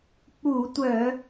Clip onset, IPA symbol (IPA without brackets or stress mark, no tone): k͡p